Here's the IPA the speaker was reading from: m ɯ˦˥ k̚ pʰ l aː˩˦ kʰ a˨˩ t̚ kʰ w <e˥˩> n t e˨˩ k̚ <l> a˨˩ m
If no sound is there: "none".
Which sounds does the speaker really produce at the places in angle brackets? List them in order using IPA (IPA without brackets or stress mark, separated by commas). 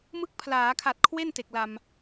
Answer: e˥˩, l